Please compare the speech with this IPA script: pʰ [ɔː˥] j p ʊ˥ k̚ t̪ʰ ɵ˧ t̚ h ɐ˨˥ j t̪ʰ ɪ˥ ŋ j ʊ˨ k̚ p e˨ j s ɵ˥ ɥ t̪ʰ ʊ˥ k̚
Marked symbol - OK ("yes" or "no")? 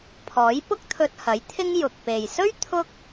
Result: no